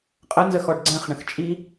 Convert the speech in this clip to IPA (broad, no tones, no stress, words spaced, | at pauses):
qʼənzəxɔɖ ɡ͡ǀɛ̃χɳə̃x t͡ʃʼi